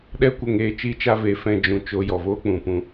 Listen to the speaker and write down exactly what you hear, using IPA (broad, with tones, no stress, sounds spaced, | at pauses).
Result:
ɗ ɛ˦˨ kʷ ə˦˨ ŋ eː˧ t͡ʃ iː˦ t͡ʃ a˦ v e˨˦ f ɛ̃˧ d͡ʒ ũ˨ t͡ʃ o˧ j ɔ˨ v oː˦ k͡p ũ˨ p ũ˧